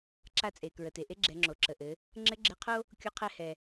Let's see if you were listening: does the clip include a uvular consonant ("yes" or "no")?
yes